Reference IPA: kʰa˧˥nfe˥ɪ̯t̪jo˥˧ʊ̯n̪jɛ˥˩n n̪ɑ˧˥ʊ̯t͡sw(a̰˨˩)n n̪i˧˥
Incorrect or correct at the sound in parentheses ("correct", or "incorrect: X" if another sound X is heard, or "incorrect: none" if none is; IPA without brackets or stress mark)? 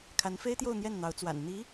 correct